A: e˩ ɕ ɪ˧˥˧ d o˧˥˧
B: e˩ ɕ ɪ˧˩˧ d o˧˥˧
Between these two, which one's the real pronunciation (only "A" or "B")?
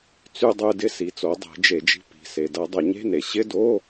A